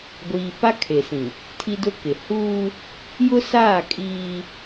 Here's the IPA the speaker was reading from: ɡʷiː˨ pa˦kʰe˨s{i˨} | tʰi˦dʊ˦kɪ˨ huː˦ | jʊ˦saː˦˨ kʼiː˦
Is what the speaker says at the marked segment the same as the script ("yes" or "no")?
no